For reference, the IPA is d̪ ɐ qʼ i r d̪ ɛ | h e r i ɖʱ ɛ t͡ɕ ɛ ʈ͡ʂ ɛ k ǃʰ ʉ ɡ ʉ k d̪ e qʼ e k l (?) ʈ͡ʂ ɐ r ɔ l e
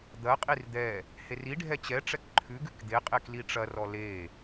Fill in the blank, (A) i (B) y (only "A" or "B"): A